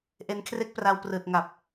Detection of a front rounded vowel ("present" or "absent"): absent